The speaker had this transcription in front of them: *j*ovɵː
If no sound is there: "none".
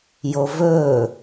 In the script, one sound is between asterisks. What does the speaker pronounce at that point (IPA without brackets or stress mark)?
j